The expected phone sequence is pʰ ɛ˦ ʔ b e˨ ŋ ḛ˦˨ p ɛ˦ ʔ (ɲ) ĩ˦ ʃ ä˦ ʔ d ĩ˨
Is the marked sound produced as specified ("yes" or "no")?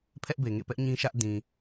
yes